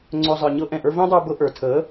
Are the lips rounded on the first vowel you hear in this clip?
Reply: yes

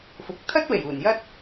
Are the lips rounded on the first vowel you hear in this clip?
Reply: yes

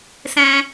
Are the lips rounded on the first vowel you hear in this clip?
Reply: no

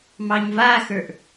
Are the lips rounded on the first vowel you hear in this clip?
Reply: no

